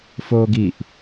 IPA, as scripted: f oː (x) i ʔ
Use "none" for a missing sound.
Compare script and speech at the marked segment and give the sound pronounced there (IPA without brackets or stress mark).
ɡ